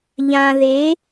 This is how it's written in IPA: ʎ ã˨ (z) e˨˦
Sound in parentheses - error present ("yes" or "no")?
yes